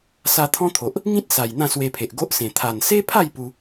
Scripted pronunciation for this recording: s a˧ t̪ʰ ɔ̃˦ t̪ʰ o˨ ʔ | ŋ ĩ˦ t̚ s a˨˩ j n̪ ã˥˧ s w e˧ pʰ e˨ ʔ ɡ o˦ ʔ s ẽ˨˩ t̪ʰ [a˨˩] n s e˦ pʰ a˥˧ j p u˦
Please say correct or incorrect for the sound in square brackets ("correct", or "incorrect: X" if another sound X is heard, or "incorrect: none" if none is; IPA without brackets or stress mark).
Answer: correct